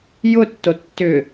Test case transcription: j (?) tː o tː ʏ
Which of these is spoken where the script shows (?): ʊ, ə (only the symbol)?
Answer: ʊ